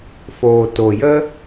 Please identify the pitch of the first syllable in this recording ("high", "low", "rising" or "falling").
low